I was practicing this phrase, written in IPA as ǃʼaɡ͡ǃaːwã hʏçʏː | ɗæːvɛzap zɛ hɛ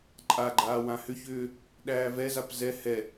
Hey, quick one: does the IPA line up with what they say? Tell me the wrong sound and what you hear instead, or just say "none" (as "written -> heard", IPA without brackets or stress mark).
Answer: none